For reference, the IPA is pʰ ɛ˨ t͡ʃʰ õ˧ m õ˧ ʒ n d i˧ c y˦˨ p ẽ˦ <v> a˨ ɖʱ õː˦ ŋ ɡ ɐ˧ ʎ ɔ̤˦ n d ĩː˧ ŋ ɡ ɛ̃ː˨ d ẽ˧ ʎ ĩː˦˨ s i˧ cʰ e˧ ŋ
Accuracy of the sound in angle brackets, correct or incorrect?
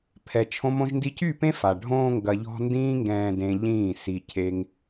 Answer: incorrect